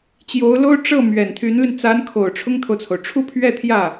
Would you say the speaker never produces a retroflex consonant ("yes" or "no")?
no